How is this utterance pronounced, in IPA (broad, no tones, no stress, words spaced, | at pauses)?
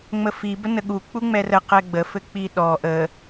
ŋ͡məfi bənəɠu k͡puŋ͡mɛrə qɛɡ͡bə fɘk͡piɗɔ ʔə